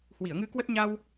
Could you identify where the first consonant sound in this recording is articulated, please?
glottal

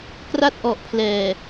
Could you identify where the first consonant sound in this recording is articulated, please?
velar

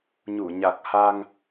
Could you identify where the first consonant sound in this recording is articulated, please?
palatal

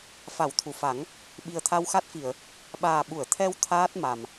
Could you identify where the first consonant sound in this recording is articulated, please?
labial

